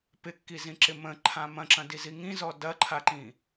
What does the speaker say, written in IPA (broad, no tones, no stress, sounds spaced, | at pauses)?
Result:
p ɪ kː i z ĩ ǁ ɪ m ə̃ ǃʰ ã m ɐ̃ ǁ ɐ̃ d i z i ŋ ĩ z ɔ d ɐ ǃʰ a ǃ ĩ